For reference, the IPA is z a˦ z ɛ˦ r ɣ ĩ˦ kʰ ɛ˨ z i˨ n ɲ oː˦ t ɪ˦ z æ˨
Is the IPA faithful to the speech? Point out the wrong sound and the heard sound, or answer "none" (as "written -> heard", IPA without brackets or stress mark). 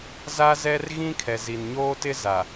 æ˨ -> a˨